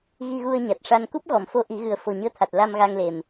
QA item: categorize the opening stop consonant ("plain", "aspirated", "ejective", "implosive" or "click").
plain